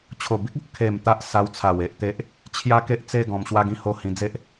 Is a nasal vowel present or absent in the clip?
present